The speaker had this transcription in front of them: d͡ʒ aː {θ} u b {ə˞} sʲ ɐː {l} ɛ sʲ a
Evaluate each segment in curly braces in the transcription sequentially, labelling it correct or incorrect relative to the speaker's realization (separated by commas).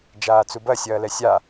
incorrect, incorrect, correct